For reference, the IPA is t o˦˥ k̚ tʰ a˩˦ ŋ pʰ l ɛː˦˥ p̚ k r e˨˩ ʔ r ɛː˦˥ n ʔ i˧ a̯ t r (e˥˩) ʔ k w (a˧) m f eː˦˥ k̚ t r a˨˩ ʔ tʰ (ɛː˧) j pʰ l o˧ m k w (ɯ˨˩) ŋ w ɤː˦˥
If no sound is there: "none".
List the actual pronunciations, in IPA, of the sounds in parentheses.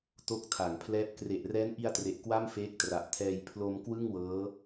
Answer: e˨˩, a˥˩, ɛː˧, ɯ˥˩

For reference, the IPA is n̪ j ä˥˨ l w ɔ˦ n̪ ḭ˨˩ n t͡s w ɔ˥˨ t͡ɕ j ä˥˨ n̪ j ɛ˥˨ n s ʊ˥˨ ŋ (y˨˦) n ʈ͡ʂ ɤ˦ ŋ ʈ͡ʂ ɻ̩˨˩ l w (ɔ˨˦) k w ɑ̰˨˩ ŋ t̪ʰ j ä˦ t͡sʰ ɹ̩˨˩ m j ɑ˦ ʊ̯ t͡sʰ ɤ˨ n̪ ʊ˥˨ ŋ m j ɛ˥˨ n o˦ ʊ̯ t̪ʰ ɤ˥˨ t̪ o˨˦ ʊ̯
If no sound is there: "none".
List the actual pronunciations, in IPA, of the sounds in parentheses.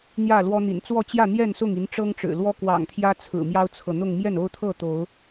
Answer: i˨˦, ɔ˦

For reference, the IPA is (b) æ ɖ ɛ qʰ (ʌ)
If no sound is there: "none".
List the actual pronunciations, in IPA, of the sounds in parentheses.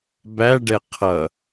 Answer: b, ʌ

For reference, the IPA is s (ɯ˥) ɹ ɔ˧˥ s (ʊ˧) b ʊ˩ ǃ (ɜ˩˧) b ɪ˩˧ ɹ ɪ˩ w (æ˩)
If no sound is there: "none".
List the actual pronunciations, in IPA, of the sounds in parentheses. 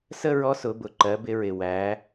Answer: ə˥, ʊ˩˧, ɜ˩˧, æ˩˧

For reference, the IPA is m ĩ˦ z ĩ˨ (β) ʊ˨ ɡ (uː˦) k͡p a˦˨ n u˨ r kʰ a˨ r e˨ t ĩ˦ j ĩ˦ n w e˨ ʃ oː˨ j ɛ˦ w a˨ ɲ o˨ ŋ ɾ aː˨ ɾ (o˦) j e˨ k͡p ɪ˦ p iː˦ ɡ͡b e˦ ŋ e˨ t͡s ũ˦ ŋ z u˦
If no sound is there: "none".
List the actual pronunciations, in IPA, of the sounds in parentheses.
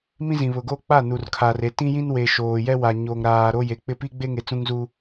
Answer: β, oː˦, o˦

